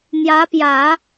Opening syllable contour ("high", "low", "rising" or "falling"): rising